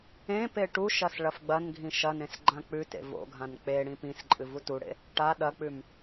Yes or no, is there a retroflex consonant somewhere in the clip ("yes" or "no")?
yes